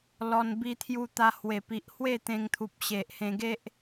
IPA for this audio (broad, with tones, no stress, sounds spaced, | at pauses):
l ɔ˧ n b i˧ t̪ʰ j u˧ t̪ a˧ h w e˨˩ p i˨ ʔ h w e˥˧ t̪ ẽ˧ ŋ t̪ʰ u˨ p̚ ɕ e˨ ʔ h ẽ˧ ɡ e˦ ʔ